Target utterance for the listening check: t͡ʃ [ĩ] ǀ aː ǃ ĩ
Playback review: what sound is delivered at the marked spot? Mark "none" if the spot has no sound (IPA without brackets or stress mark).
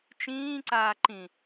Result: ĩː